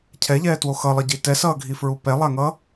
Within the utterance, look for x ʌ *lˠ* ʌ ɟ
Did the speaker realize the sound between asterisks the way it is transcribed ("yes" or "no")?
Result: yes